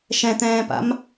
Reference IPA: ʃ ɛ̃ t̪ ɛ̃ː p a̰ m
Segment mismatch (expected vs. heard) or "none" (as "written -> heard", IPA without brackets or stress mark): none